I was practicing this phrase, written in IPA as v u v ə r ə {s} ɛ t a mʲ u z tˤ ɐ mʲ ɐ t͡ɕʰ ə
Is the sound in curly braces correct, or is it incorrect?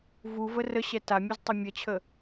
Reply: incorrect